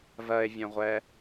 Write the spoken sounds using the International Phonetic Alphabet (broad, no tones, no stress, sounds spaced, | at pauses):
v ɜ e̯ vʲ œ̃ ʁʷ ɛ